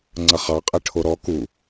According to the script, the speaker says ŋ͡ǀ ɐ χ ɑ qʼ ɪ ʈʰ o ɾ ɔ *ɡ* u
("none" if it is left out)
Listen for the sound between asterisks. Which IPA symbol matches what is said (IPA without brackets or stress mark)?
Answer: k